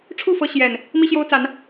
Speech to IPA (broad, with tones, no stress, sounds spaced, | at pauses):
ʈ͡ʂʰ u˥˨ f ɤ˨˦ ɕ j ɛ˨˩ n | m i˦ ɕ j o˦ ʊ̯ t͡s a˨˦ n